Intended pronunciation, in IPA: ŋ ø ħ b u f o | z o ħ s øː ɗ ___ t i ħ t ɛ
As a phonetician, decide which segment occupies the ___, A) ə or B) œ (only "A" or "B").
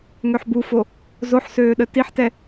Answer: A